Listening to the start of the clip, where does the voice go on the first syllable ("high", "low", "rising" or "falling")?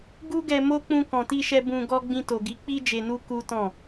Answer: high